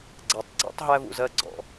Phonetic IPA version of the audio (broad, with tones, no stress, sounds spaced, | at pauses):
ɡ͡ǀ æ˨ tˤ ɡ͡ǀ ḭ˦ tˤ ɦ æ˦ v ṵ˨ z ɜ˦ ɡ͡ǀ ɔ̰˨